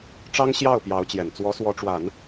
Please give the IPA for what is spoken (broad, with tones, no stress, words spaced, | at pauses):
ʈ͡ʂɑ˥ŋ ɕjɑ˥˩ʊ̯pjɑ˧˥ʊ̯t͡ɕjɛ˨˩n t͡swɔ˧˥swɔ˧˥ʈ͡ʂwa˨˩˦n